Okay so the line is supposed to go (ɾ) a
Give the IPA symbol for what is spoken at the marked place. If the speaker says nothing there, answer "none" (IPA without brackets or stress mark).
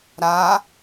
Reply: ɾ